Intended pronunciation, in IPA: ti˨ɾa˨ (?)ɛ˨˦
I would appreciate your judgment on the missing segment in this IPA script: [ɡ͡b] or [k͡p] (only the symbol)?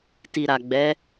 ɡ͡b